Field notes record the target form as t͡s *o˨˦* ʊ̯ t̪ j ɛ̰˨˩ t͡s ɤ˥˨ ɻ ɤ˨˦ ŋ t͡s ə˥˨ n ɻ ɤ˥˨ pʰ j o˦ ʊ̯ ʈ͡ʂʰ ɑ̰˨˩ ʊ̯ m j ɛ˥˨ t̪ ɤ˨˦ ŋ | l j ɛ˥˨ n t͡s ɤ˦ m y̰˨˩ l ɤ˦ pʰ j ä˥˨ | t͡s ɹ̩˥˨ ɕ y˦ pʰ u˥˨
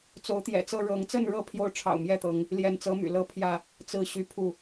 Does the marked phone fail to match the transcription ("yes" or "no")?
no